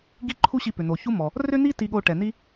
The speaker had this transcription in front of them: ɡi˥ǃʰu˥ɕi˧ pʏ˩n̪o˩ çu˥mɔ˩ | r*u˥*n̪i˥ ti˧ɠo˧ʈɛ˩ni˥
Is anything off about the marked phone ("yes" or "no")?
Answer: yes